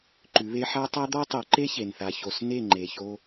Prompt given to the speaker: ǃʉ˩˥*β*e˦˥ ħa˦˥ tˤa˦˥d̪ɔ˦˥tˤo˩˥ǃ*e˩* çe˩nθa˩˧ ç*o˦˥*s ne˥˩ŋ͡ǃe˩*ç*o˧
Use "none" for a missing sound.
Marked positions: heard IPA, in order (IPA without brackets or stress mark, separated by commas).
β, e˦˥, o˩, ç